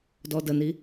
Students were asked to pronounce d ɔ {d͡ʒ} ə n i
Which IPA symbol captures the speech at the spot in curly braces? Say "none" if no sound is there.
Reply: d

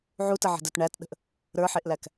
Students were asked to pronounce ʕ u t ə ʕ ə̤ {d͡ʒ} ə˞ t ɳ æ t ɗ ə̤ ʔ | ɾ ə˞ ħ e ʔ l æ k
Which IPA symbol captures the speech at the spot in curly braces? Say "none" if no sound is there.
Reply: d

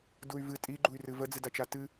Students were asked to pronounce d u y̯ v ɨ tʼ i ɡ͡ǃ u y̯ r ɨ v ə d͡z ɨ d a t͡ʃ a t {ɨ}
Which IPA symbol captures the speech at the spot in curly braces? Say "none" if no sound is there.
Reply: ɨ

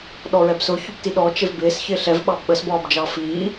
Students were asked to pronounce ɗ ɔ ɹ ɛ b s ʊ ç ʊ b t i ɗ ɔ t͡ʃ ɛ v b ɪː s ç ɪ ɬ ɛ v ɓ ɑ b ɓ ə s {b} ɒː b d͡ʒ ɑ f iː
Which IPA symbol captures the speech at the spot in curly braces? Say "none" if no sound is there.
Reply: b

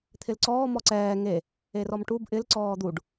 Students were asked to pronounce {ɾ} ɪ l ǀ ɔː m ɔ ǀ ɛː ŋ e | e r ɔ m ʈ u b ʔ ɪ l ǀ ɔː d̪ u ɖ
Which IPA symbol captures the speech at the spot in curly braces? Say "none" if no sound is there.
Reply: t̪ʰ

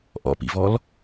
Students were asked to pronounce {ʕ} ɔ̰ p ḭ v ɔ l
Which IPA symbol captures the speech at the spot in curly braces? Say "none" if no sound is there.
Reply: ʔ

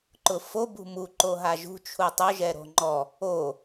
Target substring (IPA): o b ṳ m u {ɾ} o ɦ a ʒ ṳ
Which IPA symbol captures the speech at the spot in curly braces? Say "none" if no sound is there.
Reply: ǃ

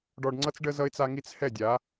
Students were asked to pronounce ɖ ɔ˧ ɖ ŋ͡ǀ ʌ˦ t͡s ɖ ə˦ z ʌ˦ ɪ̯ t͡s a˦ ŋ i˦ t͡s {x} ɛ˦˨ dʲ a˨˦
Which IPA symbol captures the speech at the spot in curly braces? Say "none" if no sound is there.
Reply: h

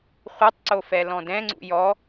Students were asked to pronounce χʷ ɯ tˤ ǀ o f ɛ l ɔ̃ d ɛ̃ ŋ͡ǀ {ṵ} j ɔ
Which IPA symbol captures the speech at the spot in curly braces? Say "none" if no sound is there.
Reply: ṵ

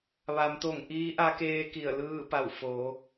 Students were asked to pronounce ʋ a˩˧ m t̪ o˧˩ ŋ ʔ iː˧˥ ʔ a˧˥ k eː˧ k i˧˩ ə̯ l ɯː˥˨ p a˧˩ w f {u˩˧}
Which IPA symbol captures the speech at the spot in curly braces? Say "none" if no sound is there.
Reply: o˩˧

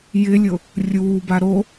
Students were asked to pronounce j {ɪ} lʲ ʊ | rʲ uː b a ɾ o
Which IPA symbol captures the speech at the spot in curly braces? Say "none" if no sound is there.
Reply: ɪ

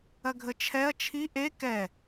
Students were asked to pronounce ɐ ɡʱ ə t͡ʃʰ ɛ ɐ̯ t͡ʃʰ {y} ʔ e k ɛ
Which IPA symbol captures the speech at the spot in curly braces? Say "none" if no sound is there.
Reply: i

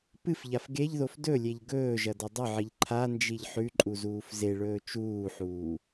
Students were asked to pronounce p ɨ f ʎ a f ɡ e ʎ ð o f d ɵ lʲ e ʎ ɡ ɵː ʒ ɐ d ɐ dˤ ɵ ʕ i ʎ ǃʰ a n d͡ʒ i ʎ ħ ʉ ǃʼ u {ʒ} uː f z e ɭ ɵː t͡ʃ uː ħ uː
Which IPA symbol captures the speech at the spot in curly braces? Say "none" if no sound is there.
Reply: z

